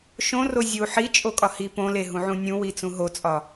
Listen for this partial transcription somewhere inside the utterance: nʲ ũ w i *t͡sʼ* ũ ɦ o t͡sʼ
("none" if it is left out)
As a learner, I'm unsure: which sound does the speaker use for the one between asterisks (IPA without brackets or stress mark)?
t͡s